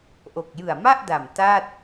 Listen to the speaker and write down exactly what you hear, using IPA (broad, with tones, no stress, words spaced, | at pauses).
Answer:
ʔo˨˩k̚jɯ˨˩a̯ma˥˩ʔda˨˩m ta˥˩t̚